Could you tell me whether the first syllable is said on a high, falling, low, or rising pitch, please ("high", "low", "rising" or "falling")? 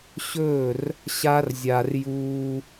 falling